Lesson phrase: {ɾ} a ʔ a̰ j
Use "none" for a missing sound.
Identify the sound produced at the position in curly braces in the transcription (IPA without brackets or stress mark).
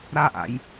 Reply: ɾ